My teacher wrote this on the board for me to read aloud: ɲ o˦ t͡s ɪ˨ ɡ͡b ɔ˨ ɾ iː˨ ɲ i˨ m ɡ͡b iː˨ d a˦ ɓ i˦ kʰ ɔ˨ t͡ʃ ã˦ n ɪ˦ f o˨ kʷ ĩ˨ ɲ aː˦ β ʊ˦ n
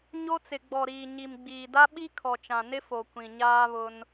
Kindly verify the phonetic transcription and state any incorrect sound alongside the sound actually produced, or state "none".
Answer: ã˦ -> ã˨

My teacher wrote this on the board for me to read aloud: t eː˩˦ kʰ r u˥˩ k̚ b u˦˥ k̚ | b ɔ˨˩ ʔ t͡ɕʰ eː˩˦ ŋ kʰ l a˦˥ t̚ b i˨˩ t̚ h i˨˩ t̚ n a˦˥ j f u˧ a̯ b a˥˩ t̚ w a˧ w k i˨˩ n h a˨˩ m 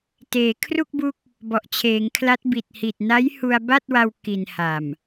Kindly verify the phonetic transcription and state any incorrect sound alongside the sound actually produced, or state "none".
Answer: f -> h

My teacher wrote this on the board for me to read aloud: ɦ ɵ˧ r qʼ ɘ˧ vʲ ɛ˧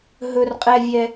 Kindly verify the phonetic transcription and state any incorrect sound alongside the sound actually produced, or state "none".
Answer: ɘ˧ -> ɛ˧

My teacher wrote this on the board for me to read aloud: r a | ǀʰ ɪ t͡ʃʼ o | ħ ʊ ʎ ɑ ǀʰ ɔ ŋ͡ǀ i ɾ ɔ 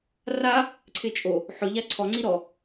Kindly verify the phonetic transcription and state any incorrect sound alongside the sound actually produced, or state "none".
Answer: ɑ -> a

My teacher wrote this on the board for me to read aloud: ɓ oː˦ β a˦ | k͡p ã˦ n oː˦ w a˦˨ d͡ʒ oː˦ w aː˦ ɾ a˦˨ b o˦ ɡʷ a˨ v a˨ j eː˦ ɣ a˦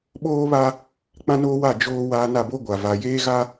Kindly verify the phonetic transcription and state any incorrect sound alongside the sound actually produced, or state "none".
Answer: ɾ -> n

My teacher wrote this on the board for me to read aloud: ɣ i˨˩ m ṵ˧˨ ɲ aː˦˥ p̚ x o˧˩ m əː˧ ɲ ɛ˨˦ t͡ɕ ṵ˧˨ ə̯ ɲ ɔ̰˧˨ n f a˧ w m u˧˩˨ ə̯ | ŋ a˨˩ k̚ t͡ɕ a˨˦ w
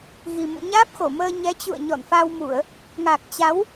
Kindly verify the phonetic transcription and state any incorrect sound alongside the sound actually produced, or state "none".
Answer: none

